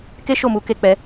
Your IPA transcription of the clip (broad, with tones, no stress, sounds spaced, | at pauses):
k e˦ ʃ o˦˨ m u˨˦ k e˧ k͡p ɛ˧